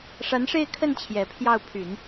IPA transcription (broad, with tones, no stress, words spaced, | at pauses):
ʂa˧˥nʂe˥˧ɪ̯kʰə˥˩n t͡ɕʰjɛ˨˩pʰjɑ˥˩ʊ̯ pʰy˨˩˦n